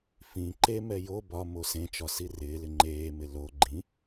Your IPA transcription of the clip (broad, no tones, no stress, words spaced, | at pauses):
fĩ ǃemɛ jo bɒ mosẽt͡ʃɒ sirɪːlɪ ŋ͡ǃeːmɪ lo ɡ͡ǃĩ